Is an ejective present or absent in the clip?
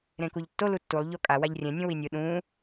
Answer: present